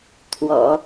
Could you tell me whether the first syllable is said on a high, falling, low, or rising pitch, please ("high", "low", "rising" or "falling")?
low